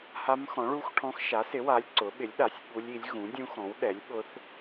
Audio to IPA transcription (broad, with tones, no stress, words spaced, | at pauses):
ha˦˥mxɔ̃˨˥ɭu˦˥xʈʰɔ̃˦˥x ʃa˨˥sɪ˨˥wa˨˥lʲ ǀʊ˨˥ ɓɪ˨˥lʲɗa˨˥sʲ ɓu˦˥lʲi˨˥lʲ ɣũ˨˥dʲũ˦˥xɔ̃˨˥w ɗɛ˨˥lʲɓʊ˦˥θ